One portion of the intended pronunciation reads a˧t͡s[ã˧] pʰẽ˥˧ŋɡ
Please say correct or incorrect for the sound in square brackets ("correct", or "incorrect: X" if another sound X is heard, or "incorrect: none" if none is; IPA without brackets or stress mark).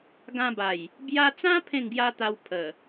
incorrect: ã˦